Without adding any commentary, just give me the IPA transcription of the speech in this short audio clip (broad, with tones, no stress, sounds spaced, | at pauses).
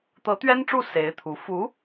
t̪ ɤ˧˥ t̪ ɥ ɛ˥ n ʈ͡ʂ u˥˩ s e˧˥ ɪ̯ t̪ʰ u˧˥ f u˧˥